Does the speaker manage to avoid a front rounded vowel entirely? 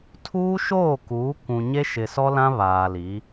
yes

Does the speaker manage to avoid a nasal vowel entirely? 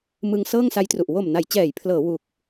yes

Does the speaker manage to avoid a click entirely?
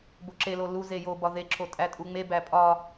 no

